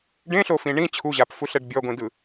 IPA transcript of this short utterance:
ɖ ẽ ɬ o f ĩ ɳ ĩ t͡ɕʰ u ʑ a p f u ɬ ɛ ɖ bʲ ɔ ɡʷ ĩ d ɯ

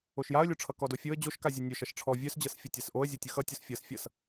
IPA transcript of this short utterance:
o ʃ j a ə̯ lʲ o ʈ͡ʂʰ ʌ k ɔ d o fʲ o ə̯ d͡ʑ o ʃ k a zʲ ɔ nʲ œ ʃ ʌ ʃ ʈ͡ʂʰ ɔ vʲ œ s d͡ʑ ɤ s fʲ ʌ tʲ a s ʔ o ə̯ zʲ o tʲ ʌ x ʌ tʲ o s fʲ ɤ s fʲ ʌ s

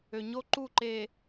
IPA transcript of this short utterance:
ø˨ ɲ o˦ ǃ u˦˨ ǃ e˨

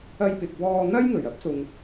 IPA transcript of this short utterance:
ɐ˧ j p ɪ˨ k̚ w ɔː˧ n̪ ɐ˥ j ŋ ɵ˨˩ ɥ ɐ˥ p̚ s ʊ˨ ŋ

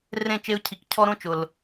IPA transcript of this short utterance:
r ẽ˦˨ t͡ʃ e˧ ʊ̯ cʰ i˨ k cʰ ɔ˦ ɾ õ˦ t͡ʃ ʊ˨ l

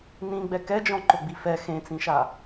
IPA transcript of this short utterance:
n ĩ ɡ͡b ɛ k ɛ d͡ʒ ɔ̃ ǃ ʊ ɡ͡b i f ɛ x ẽ t͡s ĩ ʃ a

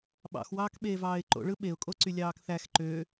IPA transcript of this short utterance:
ɓ ɑ̰ x w ɑː k ɓ eː v ɑː ɪ̯ ǃ o̰ ɭ ɯ ɓ e ʊ̯ kʼ o ǀ y lʲ ɑː k θ æ x ǃ ø

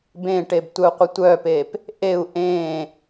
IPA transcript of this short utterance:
b ẽ ʈ e b tʷ œ u̯ qʷ ə tʷ œː p eː p | ʔ e u̯ ʔ ẽː

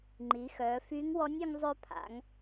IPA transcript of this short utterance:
ŋ͡ǃ i˩˧ x œː˩˧ f y˧˥ ŋ w ɔ˧˥ nʲ y˧ ŋ zˤ ø˧ pʰ a̰˩˧ ŋ

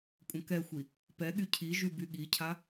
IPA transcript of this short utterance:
kʷʼ ə̃ k ɛ xʷ i | p ɛ ɠ y cʰ i ʒ y b y ɠ i cʰ a

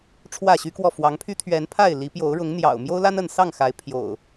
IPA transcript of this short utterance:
ʈ͡ʂʰ w ä˥˨ ɕ y˦ k w ɔ˥˨ f w ɑ˨˦ ŋ pʰ y˦ t̪ʰ ɥ ɛ˨˦ n pʰ a˥˨ ɪ̯ l i˨˦ p j o˨˦ ʊ̯ ɻ ʊ˨˦ ŋ n̪ j ɑ̰˨˩ ʊ̯ m j o˦ ʊ̯ l a˦ n ə˥˨ n s ɑ˥˨ ŋ x a˨˦ ɪ̯ pʰ j o̰˨˩ ʊ̯

